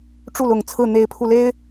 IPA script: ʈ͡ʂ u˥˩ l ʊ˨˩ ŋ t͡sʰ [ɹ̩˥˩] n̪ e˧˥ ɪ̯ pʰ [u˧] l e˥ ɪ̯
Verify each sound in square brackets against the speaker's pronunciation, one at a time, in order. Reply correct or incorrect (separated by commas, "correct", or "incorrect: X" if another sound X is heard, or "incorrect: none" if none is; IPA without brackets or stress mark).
correct, correct